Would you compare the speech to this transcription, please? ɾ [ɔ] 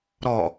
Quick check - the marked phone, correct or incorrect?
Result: correct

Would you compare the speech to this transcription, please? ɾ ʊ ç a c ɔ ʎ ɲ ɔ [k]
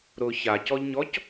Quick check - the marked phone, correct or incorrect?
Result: incorrect: c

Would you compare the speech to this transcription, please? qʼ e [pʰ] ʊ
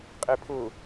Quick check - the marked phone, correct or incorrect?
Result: correct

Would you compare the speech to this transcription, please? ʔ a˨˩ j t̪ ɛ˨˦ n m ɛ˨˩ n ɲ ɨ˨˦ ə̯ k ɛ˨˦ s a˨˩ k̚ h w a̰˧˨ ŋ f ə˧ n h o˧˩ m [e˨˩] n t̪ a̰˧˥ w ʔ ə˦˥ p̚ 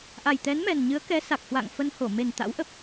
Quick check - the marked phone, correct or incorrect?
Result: correct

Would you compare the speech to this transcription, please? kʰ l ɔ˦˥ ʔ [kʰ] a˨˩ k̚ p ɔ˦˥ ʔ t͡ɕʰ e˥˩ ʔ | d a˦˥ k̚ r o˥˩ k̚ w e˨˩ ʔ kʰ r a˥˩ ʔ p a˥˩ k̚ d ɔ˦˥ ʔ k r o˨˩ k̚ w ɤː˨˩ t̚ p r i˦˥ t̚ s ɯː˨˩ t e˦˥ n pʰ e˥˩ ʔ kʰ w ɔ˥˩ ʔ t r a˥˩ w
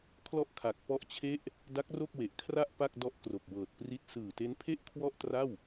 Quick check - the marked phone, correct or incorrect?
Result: correct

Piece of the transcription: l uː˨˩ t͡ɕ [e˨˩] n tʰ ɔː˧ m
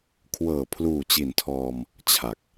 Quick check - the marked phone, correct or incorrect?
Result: incorrect: i˨˩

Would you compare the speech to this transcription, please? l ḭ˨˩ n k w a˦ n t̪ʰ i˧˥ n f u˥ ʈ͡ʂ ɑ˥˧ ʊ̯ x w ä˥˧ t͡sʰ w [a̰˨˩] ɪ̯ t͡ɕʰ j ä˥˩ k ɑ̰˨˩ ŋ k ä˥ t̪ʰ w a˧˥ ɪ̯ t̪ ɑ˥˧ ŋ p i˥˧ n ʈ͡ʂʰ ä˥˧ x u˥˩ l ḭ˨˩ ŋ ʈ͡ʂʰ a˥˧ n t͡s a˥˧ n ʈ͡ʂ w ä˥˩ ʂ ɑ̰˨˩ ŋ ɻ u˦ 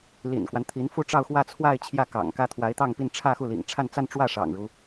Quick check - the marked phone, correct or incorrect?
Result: incorrect: a˥˧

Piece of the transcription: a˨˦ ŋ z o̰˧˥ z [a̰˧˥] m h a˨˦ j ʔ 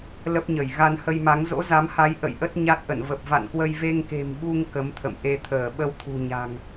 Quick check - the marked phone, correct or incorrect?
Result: incorrect: a˨˦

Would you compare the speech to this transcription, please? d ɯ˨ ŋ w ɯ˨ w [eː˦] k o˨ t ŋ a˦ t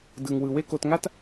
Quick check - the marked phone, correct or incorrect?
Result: incorrect: e˦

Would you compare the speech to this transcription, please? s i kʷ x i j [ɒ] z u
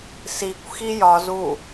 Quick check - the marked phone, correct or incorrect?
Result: correct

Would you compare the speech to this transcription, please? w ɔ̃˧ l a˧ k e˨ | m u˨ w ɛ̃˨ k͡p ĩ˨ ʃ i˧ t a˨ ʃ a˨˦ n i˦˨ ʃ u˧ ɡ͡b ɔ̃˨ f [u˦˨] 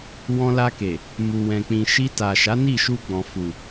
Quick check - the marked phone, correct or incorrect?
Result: incorrect: u˨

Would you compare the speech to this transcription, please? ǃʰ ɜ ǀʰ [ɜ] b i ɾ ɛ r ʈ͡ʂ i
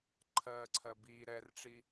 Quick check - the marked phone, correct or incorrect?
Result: correct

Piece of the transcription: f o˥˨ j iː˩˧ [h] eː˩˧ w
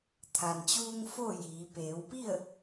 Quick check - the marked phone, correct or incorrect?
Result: incorrect: p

